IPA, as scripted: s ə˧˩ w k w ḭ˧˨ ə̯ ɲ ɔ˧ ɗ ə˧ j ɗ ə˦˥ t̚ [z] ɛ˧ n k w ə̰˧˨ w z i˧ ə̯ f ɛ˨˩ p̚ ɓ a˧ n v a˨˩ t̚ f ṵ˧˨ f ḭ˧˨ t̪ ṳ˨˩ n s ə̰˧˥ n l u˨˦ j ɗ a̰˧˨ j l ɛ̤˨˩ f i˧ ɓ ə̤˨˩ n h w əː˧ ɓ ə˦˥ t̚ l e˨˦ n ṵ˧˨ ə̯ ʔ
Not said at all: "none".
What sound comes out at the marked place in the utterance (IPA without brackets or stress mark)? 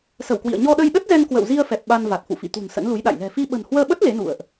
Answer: z